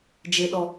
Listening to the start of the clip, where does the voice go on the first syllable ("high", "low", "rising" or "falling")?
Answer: low